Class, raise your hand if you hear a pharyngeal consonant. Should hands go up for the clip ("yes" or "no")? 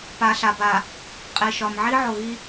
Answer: yes